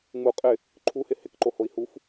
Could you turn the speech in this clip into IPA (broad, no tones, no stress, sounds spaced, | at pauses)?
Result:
ŋ͡m u qʼ ɪ | ǃʰ u h ɪ h ɪ k ǃ o h o i̯ h u f